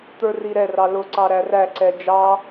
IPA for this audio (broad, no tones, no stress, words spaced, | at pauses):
t̪ə˞riɾɛrɑ lʊ ǀɑɾæræǀɛ d͡ʒɑ